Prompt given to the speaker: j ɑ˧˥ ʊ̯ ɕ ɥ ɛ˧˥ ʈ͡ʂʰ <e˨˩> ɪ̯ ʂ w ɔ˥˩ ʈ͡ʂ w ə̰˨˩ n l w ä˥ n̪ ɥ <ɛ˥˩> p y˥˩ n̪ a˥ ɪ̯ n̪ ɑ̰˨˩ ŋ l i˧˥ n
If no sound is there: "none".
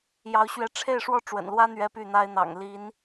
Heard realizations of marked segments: e˥˧, ɛ˥

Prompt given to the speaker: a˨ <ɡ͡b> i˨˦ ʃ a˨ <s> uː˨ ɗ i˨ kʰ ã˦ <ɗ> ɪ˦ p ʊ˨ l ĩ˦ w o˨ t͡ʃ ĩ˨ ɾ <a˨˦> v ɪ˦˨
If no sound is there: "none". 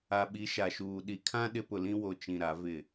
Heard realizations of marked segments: ɓ, ʃ, ɗ, a˨˦

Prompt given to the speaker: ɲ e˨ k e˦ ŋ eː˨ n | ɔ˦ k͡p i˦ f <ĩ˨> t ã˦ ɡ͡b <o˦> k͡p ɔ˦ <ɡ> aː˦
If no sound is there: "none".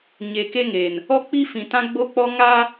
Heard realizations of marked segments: ĩ˨, o˦, ŋ

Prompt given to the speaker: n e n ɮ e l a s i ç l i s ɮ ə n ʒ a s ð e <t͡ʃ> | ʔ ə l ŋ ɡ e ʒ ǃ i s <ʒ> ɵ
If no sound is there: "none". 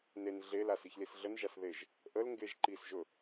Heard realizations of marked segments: ʒ, ʒ

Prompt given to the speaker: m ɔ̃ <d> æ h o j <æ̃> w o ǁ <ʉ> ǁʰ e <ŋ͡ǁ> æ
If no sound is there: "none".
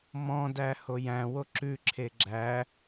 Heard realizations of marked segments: d, æ̃, ʉ, ɡ͡ǁ

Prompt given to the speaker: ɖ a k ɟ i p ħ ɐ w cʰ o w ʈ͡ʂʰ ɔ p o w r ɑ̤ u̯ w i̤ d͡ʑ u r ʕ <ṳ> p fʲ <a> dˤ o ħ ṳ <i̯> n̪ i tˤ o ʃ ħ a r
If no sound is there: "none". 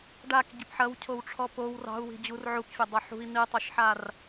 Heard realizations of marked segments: u, ɐ, i̯

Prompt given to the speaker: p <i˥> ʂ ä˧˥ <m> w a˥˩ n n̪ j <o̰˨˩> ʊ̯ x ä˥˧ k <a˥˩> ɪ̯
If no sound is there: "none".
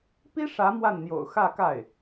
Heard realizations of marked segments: i˥, m, o̰˨˩, a˥˩

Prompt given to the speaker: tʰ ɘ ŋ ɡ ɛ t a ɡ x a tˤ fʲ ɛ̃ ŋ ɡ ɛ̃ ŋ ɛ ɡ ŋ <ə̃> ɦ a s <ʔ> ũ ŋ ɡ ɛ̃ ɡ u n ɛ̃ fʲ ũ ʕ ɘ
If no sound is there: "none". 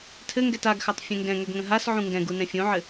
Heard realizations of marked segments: ə̃, ʕ

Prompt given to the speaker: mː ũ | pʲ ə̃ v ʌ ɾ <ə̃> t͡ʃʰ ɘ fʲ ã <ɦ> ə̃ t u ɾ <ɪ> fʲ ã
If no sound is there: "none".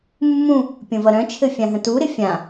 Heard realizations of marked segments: œ̃, ɦ, ɪ

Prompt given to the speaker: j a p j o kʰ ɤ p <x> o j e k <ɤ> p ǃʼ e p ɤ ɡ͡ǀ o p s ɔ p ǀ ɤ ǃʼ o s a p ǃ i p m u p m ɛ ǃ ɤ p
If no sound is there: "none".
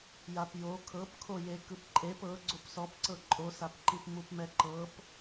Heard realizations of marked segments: kʰ, ɯ

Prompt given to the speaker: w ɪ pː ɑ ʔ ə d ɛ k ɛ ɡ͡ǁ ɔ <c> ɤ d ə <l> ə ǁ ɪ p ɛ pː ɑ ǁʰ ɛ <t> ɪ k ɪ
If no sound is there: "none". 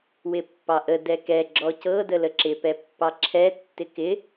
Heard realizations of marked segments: c, l, tː

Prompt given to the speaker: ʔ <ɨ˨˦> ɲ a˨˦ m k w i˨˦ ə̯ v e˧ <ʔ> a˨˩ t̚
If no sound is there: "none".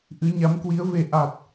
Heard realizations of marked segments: ɨ˨˦, ʔ

